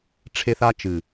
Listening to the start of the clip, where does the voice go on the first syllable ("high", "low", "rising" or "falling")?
high